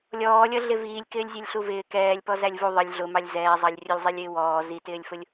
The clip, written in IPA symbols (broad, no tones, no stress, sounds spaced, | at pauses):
lʲ ɔː lʲ ʌ ɮ ɪ v iː lʲ k ɪː lʲ zʲ ɛ lʲ ɬ u v ɪː k ɛː lʲ p ɔ z æ lʲ v u ðˤ ə lʲ ɮ ʊ m ɑ lʲ z ɛː zˤ ɑ lʲ rʲ ʊ lʲ zˤ ɛ lʲ ɪː w ɔː z i t ɪː lʲ f ʊ lʲ